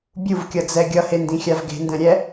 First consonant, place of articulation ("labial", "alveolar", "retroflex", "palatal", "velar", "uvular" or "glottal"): labial